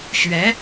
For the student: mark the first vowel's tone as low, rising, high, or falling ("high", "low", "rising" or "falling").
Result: rising